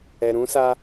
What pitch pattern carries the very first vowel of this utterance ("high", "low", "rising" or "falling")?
low